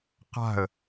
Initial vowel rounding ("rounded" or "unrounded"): unrounded